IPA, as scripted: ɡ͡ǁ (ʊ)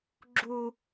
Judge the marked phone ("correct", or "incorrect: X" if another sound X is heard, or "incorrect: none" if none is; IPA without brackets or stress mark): incorrect: u